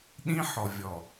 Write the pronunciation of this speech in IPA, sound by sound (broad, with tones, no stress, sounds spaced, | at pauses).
ɗ ĩ˦ ħ ɔ˨ vʲ ɔ˨